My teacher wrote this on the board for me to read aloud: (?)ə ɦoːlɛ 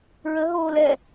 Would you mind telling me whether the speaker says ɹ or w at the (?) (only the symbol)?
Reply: ɹ